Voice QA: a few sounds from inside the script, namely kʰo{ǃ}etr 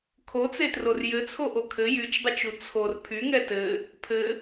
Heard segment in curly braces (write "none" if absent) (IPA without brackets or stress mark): t͡s